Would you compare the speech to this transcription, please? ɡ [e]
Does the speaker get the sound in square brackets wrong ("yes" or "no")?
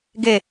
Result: no